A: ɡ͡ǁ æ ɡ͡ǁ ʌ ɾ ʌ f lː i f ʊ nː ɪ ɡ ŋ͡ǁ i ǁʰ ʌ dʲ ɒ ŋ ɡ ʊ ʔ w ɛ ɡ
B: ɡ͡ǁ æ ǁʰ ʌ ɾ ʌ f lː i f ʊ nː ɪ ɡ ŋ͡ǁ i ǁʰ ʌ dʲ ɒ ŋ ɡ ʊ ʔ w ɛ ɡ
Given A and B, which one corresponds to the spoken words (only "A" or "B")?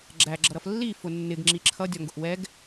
A